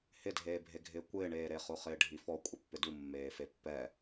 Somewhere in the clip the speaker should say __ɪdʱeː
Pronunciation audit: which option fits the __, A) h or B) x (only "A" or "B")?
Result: A